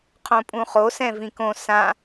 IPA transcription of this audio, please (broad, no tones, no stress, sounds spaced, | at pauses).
qʰ õ pʼ ũ χ o s ɛ̃ v ĩ k õ s ã